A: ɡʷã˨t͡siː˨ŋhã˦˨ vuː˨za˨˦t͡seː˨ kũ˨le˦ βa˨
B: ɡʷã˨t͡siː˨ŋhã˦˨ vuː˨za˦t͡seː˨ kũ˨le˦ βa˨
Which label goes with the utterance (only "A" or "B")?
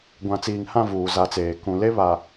A